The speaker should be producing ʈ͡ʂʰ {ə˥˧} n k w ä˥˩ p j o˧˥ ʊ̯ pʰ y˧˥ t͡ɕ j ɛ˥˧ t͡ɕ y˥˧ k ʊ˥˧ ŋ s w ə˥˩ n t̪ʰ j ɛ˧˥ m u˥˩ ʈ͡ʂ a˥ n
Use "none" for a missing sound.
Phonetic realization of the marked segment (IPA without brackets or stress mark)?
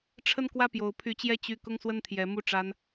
ə˥˧